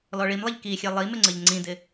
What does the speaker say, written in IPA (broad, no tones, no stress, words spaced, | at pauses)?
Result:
lɔɭimlˠiʎ kixʲɛ lˠimɪŋ͡ǀəʎ ŋ͡ǀĩdɪ